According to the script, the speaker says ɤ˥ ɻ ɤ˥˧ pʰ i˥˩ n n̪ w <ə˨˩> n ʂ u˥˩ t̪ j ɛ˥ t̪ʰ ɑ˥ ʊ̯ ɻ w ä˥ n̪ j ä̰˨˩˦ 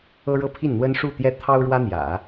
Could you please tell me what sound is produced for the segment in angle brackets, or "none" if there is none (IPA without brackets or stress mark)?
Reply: ə˥